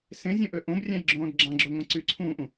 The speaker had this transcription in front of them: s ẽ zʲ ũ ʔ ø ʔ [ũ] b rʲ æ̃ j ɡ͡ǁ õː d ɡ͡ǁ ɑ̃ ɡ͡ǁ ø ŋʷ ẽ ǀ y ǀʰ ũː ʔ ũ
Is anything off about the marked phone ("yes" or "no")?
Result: yes